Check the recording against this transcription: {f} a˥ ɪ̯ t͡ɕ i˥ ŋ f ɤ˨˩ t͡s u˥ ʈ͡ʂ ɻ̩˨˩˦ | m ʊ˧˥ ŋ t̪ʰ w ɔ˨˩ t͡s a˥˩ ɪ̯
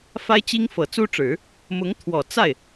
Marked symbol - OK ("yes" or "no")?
yes